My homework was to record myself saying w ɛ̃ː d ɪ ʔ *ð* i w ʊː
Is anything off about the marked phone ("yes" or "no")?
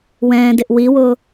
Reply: yes